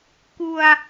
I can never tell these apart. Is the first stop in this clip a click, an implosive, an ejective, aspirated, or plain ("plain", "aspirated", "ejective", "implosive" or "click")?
plain